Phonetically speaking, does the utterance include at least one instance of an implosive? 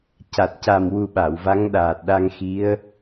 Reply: yes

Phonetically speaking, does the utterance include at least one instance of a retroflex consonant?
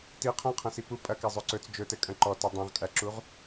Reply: no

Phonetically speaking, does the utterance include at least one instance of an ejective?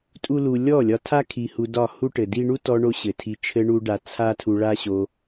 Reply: yes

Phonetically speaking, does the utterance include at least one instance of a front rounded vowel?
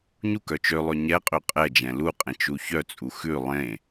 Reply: yes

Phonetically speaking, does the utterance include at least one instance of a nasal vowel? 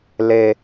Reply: no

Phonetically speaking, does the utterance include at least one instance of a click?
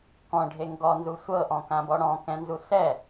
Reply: no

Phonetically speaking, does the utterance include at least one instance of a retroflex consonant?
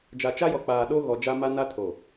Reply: no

